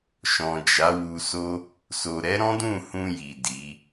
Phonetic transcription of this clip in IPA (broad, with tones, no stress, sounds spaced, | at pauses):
ʃ ɔ̃˨ d͡ʒ a˨˦ w u˧ s o˦ | s o˨ ɾ ɛ˨˦ ɾ ɔ̃˦ d ũ˦˨ h ũ˧ j i˨ d i˨˦